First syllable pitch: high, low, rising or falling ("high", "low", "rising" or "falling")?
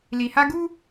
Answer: low